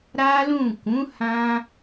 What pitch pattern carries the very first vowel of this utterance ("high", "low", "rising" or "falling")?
high